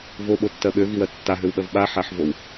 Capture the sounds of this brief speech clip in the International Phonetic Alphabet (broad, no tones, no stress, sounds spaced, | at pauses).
v o ɓ o tː ɜ ɓ ø v i w ɜ tː a ɦ ø w ɓ ɜ v ɓ a ħ a ħ v o w